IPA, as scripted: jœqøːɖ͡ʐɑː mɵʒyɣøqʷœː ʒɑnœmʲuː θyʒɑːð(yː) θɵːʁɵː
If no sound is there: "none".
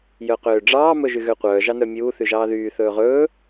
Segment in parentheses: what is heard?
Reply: yː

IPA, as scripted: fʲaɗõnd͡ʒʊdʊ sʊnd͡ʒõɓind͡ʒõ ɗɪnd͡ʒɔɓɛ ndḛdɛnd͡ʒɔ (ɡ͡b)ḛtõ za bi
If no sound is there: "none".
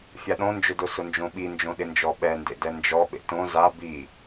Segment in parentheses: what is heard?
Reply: ɓ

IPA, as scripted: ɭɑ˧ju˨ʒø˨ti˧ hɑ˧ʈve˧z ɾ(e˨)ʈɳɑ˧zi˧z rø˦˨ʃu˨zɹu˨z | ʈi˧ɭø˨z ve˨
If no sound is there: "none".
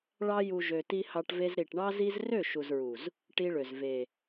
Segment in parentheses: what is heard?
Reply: i˨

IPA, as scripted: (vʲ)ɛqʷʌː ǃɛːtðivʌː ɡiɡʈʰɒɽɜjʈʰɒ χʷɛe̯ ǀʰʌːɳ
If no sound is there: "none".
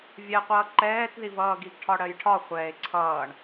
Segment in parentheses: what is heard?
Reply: vʲ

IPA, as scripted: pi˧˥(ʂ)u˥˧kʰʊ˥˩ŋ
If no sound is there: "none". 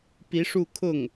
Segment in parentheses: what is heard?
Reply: ʂ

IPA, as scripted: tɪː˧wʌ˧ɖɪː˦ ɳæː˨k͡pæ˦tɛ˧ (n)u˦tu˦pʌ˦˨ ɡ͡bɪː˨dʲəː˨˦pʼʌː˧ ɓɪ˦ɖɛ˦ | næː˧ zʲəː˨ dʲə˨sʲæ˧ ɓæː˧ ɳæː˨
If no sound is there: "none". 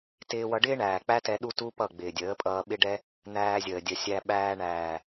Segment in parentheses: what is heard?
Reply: ɗ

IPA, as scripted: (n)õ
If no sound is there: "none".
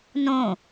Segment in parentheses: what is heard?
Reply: n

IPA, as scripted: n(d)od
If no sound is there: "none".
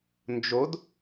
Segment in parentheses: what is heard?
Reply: d͡ʒ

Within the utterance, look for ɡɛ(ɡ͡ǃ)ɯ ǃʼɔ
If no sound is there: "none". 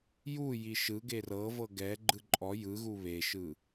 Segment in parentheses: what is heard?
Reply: ɡ͡ǃ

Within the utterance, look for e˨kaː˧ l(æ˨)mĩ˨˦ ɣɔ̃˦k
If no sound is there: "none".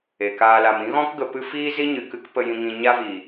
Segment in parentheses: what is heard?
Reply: a˨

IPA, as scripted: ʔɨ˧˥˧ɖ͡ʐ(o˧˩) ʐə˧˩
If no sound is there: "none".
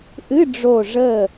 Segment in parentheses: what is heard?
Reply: o˧˩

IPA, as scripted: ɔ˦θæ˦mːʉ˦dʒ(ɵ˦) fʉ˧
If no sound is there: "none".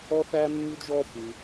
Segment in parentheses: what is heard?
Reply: ɔ˦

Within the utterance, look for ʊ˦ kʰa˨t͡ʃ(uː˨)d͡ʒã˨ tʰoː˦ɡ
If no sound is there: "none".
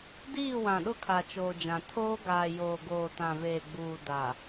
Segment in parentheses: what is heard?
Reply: oː˨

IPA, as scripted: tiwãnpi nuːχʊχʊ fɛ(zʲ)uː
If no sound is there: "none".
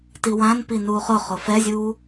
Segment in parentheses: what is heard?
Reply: zʲ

